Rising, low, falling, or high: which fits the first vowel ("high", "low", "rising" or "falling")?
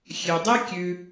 low